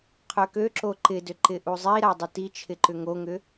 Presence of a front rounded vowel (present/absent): present